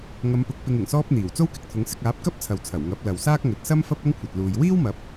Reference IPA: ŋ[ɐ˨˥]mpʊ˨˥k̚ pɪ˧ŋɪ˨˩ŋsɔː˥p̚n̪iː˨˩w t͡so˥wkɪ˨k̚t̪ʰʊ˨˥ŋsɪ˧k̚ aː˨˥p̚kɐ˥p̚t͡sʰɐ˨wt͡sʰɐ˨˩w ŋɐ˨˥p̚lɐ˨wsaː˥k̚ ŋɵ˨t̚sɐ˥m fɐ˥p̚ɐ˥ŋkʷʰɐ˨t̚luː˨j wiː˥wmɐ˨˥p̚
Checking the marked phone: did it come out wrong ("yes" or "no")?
yes